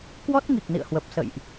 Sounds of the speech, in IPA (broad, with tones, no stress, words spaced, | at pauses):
kwɔ˦˥t̚ŋi˨˩k̚nḭ˧˨ə̯hwə˨˩p̚ sə̰˧˨jʔ